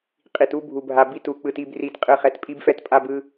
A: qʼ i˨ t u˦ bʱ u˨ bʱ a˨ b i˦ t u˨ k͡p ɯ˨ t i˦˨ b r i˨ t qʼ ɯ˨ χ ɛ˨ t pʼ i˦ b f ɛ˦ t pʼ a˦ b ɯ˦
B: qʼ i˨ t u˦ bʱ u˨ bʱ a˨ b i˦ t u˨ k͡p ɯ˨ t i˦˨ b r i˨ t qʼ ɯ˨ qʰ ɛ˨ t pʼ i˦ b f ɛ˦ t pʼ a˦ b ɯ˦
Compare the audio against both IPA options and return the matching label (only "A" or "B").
A